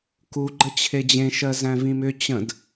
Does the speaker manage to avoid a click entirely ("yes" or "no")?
no